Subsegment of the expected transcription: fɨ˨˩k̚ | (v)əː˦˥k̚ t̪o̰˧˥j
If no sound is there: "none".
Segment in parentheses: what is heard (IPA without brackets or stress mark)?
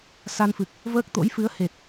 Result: v